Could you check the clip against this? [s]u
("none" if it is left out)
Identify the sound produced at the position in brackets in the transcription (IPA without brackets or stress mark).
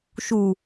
ʃ